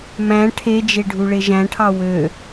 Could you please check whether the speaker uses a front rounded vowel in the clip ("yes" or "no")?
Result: yes